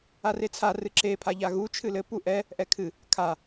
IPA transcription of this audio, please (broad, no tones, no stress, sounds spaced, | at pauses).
a r e t͡sʰ a r ɨ ǁ e pʰ a ʎ a ɣ u t͡ʃʰ ɨ l ɘ p u ʔ ɛ | ʔ ɛ kʰ ɨ | kʰ a